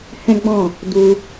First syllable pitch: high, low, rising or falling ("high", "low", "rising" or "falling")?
high